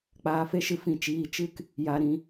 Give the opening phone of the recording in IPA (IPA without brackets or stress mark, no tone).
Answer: k͡p